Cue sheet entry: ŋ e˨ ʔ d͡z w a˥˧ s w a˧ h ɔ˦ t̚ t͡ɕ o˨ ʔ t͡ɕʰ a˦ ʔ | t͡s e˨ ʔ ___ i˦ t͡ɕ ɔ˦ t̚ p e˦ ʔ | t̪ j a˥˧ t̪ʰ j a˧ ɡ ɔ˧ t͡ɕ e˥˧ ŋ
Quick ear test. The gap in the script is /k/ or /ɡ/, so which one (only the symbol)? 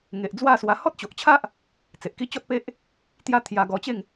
k